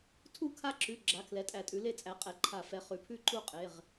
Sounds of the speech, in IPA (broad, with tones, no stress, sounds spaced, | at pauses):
tʰ u˥˨ kʰ a˥˨ ǁ ʉ˩˧˩ ɡ͡ǁ a˩˧˩ kʰ l ɛ˩˥ tʼ æ˨˩˦ tʼ ʉ˩˥ l e˥˨ t͡sʼ æ˩˥ qʼ ɛ˩˥ ǃʰ a˨˩˦ f ɛ˩˥ χ ʉ˩˥ pʰ ʉ˥˨ ǃ u˥˨ qʼ e˩˧˩ ʁ